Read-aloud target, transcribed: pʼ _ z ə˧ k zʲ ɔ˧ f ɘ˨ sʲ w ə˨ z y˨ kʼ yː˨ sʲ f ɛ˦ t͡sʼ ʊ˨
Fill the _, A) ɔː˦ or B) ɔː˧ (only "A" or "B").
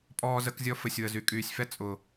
B